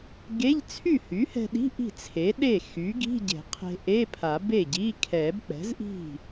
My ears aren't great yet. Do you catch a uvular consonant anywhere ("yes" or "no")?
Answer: yes